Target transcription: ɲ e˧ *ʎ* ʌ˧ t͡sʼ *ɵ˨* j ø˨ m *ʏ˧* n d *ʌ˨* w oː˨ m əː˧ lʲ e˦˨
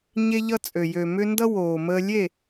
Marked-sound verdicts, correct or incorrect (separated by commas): correct, incorrect, correct, incorrect